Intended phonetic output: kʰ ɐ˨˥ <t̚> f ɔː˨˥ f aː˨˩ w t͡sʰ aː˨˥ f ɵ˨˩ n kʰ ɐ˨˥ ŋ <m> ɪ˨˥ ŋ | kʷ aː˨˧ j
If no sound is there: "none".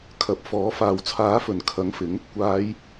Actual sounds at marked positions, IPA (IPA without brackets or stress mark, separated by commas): p̚, f